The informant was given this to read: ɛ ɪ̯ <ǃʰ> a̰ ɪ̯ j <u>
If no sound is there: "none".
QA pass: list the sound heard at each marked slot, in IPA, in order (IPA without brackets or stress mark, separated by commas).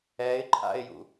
ǃʰ, ṵ